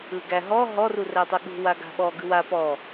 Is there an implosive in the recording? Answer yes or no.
yes